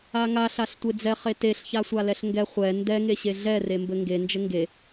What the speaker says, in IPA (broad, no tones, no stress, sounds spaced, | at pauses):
a ŋ a ɬ a ɬ tʷ e d͡z ɛ χ e t e ɬ ç a sʷ a l ɛ ɬ ŋ ɡ ɛ χʷ ɛ n d ɛ ŋ e ɕ e ɮ ɛ r e m b ɘ ŋ ɡ e n d͡ʒ ɘ ŋ ɡ e